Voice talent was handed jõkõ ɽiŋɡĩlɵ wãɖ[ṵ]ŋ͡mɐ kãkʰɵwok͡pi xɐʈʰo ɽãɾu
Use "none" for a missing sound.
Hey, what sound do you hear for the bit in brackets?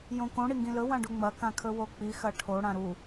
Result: u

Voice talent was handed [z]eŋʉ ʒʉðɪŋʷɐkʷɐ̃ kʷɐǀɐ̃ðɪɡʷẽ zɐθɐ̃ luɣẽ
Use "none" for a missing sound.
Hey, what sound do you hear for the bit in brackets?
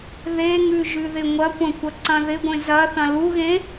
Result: ð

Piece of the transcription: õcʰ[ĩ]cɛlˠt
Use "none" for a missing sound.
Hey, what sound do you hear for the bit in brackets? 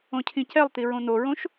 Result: ĩ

